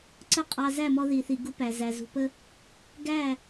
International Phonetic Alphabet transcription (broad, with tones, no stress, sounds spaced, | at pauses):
ǀ ə˦ qʼ ɑ˧ z æ˦˨ m ɔ˧ ð i˨ θ i˨ ɡ u˧ p æ˨ z æ˨ z ṳ˨ p ə˧ | ɡ æ˦˨